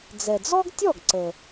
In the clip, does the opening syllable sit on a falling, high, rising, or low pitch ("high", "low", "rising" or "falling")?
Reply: low